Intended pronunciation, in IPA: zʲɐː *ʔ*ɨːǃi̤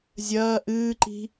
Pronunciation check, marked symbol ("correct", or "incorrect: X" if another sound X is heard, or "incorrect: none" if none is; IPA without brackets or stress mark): correct